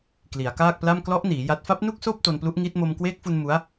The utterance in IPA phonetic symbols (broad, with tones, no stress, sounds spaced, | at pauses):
k l i˩˦ a̯ k aː˥˩ k̚ p l a˥˩ m k l ɔ˦˥ ʔ n iː˩˦ j a˦˥ t̚ f a˦˥ p̚ n u˥˩ k̚ s oː˥˩ p̚ t o˧ n p l u˦˥ ʔ ŋ iː˦˥ t̚ m o˧ m k w eː˦˥ k̚ f u˧ n m u˦˥ a̯